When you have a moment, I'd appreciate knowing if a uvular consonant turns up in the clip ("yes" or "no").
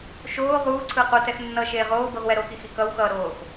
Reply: yes